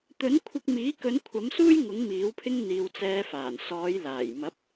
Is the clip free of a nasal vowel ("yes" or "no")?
yes